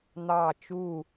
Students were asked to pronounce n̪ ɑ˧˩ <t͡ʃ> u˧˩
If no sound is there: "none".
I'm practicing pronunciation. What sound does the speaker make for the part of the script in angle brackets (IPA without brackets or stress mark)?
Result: t͡ʃ